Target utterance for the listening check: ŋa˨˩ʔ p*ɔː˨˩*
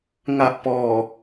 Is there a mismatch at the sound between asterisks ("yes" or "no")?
no